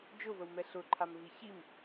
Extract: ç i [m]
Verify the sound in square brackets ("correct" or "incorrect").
correct